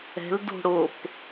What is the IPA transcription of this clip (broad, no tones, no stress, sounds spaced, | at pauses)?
ɛ̤ l d o̤ ɽ o p